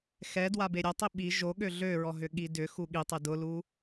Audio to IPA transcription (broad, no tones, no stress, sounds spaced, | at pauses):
x ɛ d w a b e ɾʲ ɐ tˤ i ɓ i ʒ o ɠ ø ɮ ø ɹ ɔ ɦ ʏ ɠ i d ʏ x u ɠ i tˤ e d ʊ l u